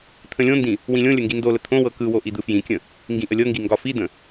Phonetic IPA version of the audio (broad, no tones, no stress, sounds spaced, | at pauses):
t̪ʰ ə̃ lʲ õ n d ĩ | w ĩ lʲ õ lʲ ə ŋ ɡ i n d o l ə t̪ʰ õ w ɤ k ɯ w o ʔ i d̪ ɯ f j ĩ kʲ ə̃ | ŋ ɡ ĩ ʔ ə lʲ ɤ ŋ ɡ i ŋ ɡ ɒ f i d̪ ə̃